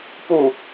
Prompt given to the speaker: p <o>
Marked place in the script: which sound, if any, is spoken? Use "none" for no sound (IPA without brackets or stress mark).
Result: u